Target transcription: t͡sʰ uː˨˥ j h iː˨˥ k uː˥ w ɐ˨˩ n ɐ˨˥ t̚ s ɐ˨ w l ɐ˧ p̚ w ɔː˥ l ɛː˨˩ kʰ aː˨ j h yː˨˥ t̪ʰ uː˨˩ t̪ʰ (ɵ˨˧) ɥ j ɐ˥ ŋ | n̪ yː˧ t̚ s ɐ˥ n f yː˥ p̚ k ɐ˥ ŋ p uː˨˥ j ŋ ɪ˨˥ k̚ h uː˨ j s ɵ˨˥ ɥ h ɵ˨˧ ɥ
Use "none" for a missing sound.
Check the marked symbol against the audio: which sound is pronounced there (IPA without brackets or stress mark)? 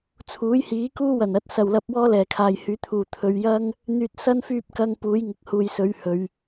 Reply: ɵ˨˧